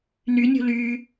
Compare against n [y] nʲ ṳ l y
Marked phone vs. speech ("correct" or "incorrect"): correct